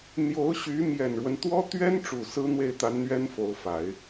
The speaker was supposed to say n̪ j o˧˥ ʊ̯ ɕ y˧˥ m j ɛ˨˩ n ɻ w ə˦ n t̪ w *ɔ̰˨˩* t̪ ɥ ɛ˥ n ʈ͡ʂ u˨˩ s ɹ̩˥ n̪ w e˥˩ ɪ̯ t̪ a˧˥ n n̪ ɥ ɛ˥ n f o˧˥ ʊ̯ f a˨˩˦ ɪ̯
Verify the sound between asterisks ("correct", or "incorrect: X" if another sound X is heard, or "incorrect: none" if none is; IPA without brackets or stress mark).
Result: incorrect: ɔ˥